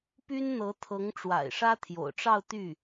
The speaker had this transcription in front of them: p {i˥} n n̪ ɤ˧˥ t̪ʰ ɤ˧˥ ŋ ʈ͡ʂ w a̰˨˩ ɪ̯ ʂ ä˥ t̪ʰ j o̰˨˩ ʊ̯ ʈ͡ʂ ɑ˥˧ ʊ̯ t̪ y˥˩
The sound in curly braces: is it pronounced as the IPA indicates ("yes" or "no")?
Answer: no